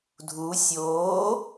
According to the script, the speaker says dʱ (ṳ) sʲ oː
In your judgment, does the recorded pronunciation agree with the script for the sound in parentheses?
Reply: no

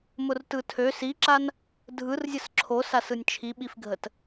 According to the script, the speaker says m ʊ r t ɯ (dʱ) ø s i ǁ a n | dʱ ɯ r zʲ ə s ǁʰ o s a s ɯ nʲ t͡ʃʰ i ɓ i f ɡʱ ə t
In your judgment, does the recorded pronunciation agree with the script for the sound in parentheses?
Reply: no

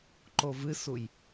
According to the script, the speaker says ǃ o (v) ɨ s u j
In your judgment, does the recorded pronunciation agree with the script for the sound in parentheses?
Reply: yes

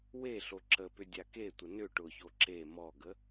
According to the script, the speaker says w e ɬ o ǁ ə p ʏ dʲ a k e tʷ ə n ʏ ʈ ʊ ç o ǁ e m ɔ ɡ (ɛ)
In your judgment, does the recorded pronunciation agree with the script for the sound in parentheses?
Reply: no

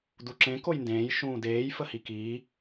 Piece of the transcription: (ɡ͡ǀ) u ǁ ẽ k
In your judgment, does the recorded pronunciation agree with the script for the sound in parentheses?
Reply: no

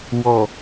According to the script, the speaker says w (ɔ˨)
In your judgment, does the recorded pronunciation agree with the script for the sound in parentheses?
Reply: yes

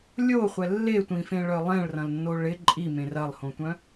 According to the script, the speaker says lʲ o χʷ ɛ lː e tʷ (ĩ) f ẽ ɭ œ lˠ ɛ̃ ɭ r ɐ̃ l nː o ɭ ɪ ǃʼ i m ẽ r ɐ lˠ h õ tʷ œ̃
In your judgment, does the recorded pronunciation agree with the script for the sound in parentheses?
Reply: yes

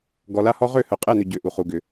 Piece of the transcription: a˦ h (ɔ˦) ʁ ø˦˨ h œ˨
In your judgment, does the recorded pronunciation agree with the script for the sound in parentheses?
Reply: yes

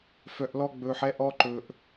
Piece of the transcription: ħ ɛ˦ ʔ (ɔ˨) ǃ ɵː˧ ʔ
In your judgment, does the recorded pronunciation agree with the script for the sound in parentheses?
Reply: no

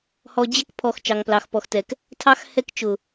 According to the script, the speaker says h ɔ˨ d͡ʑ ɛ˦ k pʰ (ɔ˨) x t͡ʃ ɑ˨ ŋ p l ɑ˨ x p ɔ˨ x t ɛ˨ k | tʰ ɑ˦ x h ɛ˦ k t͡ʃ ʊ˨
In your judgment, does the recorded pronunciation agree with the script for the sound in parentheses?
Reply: yes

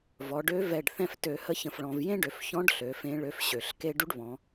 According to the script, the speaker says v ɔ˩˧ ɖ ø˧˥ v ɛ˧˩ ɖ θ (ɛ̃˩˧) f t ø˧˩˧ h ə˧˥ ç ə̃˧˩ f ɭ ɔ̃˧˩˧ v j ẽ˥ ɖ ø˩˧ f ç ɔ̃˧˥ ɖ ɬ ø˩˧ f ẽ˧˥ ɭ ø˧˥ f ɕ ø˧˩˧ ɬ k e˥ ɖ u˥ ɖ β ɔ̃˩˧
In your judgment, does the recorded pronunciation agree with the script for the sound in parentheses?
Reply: no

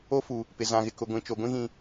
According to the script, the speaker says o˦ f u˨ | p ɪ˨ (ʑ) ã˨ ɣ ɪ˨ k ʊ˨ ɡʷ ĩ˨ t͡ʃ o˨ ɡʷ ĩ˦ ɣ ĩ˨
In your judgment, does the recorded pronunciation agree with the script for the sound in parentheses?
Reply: no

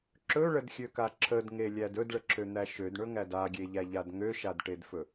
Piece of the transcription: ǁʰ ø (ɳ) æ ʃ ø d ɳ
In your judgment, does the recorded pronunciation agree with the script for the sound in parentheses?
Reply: no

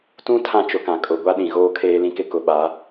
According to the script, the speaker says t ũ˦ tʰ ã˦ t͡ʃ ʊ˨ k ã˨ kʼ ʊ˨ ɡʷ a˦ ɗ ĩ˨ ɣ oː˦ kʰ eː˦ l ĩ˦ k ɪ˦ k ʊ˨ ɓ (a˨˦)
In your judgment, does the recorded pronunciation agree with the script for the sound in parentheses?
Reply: yes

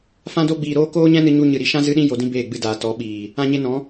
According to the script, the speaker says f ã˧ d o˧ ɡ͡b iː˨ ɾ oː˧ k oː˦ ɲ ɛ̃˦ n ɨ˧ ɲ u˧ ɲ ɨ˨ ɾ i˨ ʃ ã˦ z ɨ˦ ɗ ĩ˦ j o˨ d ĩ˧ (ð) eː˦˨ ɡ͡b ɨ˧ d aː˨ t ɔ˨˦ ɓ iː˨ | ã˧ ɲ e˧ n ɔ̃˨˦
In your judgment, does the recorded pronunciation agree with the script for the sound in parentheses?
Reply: no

